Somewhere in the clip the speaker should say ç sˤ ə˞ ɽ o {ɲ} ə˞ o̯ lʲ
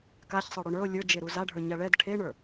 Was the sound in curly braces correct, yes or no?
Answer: no